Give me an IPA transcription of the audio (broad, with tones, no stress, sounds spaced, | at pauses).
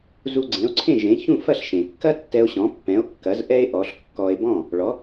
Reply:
z u˧ ɡ͡ǀ ẽ˩˥ o̯ ǀʰ ẽ˥˩ ʒ ẽ˩˥ ç ũ˥˩ f ɐ˥˩ ɬ ʃ ẽ˩ kː ɐ˥ tː ɛ˧ o̯ ɕ ɔ̃˩˥ pː ɛ̃˩˥ o̯ kː ɐ˩˥ z ʔ ɛ˥ e̯ ʔ ɔ˩˥ ɬ kː ɔ˧ e̯ b ɔ̃˥˩ | ɭ ɔ˩˥